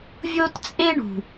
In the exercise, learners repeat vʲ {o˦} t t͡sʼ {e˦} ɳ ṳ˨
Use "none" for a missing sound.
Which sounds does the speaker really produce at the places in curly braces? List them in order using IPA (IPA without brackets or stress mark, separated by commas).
o˦, e˦